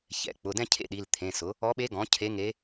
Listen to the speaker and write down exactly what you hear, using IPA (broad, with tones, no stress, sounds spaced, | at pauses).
ç ɛ̰˩˧˩ k͡p ʊ˩˧˩ d ɛ̃˥˧ cʰ ḛ˥˧ ɗ i˩˧˩ l t̪ʰ ẽ˩˧˩ s ʊ˩˥ | ɔ˧˥ ɓ e˧˥ ɡ ɔ̃˩˥ cʰ e˧˥ ŋ e˧˥